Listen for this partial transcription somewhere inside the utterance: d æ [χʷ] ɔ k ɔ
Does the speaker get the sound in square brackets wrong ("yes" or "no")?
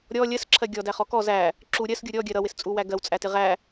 yes